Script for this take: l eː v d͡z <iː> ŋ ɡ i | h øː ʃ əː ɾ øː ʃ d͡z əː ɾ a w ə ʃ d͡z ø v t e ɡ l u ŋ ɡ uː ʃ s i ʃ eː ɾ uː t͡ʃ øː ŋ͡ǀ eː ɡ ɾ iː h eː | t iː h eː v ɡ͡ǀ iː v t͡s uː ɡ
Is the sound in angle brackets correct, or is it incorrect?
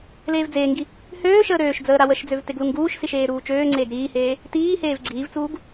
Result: incorrect